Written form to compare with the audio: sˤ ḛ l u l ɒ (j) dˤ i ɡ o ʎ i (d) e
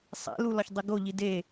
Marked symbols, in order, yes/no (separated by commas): no, yes